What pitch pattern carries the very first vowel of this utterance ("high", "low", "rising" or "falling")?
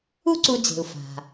high